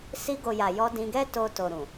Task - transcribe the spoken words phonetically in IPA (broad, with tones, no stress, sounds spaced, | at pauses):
s i˧ ɡ o˨ j a˨ j ɔ˧ d ĩ˧ ɡ ɛ˦ t o˧ t o˨ ɾ ũ˨